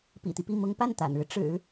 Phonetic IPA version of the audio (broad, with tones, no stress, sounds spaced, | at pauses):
p ḭ˨˩ t̪ i˦ p i˥˩ m ʊ˥ ŋ p a˥˩ n t̪ a̰˨˩ n ɻ ɻ̩˦ ʈ͡ʂ ɻ̩˨˩˦